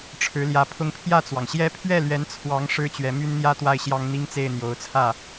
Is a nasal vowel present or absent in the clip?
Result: absent